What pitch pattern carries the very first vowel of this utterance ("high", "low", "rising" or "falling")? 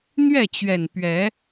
falling